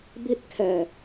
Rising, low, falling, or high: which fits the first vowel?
falling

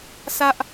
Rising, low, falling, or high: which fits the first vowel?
high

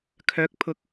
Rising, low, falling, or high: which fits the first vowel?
rising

